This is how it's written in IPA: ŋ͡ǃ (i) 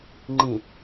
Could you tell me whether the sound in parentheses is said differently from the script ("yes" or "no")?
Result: yes